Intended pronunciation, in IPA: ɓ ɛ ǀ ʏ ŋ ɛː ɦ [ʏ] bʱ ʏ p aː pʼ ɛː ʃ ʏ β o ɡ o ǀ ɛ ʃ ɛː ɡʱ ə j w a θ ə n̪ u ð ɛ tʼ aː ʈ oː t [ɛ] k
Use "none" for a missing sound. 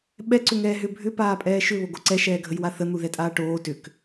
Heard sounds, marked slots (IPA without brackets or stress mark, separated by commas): ʏ, ʏ